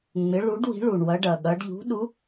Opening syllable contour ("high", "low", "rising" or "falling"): rising